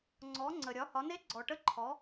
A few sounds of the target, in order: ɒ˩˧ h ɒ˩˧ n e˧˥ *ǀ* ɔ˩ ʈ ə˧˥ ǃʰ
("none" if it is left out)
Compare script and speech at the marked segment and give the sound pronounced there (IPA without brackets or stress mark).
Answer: ɡ͡ǀ